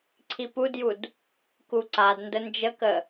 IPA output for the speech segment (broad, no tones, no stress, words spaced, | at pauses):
ǀʰipudjud | kuǀadndə nd͡ʒəkə